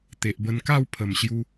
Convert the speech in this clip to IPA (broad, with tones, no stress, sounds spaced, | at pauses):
t̪ e˨ ʔ b ə˧ n k a˥˧ w pʰ ə˨˩ m ɕ j u˧